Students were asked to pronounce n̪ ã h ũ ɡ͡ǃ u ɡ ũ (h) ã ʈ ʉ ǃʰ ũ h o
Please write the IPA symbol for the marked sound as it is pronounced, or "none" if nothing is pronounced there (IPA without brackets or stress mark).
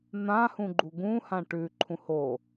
h